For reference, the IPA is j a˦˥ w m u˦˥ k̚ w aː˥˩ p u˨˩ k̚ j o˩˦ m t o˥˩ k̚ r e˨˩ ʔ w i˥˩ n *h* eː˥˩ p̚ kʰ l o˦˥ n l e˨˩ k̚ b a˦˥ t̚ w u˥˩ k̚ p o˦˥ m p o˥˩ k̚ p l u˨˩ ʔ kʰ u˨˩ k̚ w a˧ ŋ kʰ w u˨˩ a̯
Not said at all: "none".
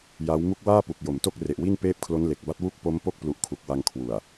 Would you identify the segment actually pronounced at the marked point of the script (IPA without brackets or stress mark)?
p